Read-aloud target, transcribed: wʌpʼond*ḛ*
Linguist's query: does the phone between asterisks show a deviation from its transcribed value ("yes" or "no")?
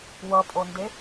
yes